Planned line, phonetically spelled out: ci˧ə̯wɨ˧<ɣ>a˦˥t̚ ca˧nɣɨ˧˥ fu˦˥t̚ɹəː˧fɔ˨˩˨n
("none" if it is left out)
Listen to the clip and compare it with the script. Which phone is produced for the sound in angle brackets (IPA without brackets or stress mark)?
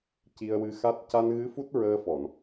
x